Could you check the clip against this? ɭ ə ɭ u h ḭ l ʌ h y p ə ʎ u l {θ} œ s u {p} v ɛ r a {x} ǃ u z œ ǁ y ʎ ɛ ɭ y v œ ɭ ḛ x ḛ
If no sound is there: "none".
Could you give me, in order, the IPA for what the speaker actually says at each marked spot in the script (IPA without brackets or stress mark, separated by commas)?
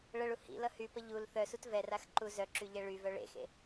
θ, t, x